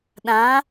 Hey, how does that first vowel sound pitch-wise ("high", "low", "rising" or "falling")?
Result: rising